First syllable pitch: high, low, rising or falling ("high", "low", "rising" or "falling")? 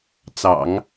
low